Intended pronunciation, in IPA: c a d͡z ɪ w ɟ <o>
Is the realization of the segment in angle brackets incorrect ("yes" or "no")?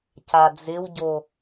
no